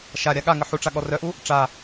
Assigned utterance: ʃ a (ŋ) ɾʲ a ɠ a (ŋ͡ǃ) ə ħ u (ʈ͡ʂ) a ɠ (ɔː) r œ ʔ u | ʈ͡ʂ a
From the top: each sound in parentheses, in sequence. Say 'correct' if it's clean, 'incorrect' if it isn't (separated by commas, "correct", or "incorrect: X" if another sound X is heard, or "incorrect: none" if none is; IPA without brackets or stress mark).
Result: incorrect: none, incorrect: ŋ, correct, incorrect: ɔ